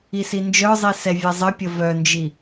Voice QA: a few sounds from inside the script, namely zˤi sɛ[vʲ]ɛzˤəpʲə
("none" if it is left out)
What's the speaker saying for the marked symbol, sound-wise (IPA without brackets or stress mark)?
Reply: vʲ